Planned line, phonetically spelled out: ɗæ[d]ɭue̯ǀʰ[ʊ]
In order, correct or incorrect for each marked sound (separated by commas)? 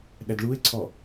correct, incorrect